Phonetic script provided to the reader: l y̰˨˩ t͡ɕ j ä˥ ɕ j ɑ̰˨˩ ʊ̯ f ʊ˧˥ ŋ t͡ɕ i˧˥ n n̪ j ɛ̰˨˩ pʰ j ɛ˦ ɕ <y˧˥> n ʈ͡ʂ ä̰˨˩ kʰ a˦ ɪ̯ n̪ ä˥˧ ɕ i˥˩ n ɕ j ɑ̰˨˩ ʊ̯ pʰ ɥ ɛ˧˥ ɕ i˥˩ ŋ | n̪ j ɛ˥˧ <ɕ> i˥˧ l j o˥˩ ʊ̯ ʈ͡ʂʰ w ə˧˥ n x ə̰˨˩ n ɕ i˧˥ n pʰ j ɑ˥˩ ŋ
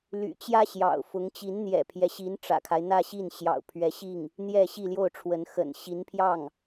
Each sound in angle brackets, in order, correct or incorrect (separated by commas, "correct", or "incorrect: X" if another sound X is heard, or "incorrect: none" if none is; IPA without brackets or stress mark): incorrect: i˧˥, correct